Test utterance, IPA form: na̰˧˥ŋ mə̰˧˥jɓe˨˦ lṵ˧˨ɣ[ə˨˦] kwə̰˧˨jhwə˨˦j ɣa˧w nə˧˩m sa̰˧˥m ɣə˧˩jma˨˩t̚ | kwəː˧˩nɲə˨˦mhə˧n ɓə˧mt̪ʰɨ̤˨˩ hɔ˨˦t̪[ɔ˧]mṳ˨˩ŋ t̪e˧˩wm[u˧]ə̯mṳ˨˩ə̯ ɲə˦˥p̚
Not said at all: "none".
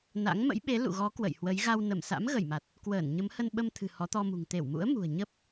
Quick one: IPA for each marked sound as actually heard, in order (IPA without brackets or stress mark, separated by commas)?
ɔ˨˦, ɔ˧, ṵ˧˥